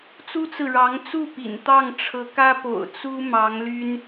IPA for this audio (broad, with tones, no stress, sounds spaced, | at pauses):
t͡s u˥ t͡s ɹ̩˨ ɻ ɑ˧˥ ŋ t͡s u˥˩ p ḭ˨˩ n t̪ ɑ˥˩ ŋ ʈ͡ʂʰ ɤ˧˥ k ä˥ p o̰˨˩ ʊ̯ t͡s u˥ m ɑ˧˥ ŋ l y˥ n